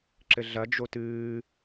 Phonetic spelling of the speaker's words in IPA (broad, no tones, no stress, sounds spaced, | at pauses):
ǁ ɘ ɮ ɐ d͡ʒ o t ɨː